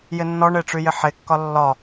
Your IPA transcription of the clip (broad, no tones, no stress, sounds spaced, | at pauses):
j ɪ nː ɔ ɳ e ʈ͡ʂ y j ɪ ħ e kː ɒ lː ɒ